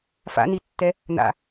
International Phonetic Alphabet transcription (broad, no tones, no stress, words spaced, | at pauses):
fa̰nitːɛ | n̪a̰